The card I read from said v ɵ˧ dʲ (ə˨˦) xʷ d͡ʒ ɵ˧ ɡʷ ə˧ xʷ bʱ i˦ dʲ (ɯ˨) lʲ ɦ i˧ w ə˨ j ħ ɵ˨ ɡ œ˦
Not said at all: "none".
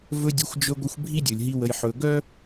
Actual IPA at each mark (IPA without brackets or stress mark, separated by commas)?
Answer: ə˨˦, ɯ˨